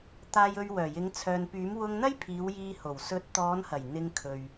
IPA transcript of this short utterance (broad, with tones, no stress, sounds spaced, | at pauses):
t̪ aː˨ j ɵ˨ ɥ w œː˨˩ j ɪ˨˧ ŋ t͡sʰ œː˨ n p yː˨˥ m w ʊ˧ ŋ n̪ ɐ˥ j pʰ iː˨˧ w j iː˧ h o˨˩ w s ɵ˨˥ t̚ t̪ ɔː˨˧ n h ɐ˨˩ j n̪ ɪ˧ ŋ kʰ ɵ˨ ɥ